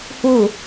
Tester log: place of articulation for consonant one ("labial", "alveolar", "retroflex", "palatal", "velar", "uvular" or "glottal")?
glottal